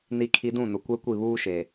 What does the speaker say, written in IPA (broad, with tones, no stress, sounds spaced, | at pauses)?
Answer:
n i˨ kʰ i˨ d ũ˦˨ n ʊ˨ kʷ ɛ˦ kʷ i˦˨ β uː˦ ʃ e˨